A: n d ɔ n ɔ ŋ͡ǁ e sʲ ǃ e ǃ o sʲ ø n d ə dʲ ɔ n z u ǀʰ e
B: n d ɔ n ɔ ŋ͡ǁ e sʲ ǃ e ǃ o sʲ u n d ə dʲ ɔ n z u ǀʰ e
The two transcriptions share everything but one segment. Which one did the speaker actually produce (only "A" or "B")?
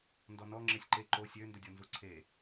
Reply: A